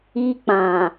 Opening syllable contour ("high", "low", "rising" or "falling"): high